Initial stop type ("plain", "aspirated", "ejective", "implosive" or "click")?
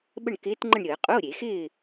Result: implosive